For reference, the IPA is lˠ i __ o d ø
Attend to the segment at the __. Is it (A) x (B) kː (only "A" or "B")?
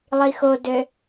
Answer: A